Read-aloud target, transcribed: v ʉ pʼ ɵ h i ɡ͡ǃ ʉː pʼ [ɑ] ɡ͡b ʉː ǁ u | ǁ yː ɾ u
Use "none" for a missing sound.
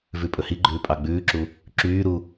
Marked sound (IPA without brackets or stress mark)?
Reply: ɑ